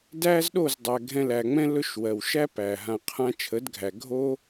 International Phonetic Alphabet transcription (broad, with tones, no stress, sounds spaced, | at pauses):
d æː˦ z ɗ o˦˨ z dˤ æ˨ ɡʱ ɛ̃˧ l æ˨ ŋ͡m ɛ̃˦ l ɵ˦ ʃ w ɜ˨ w ʃ æ˦ p æ˨ ɦ ã˨ qʰ ã˧ t͡ʃʰ ə˨˦ d ɡʱ æ˨ ɡʱ o˦